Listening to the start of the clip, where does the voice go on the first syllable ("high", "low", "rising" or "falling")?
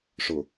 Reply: low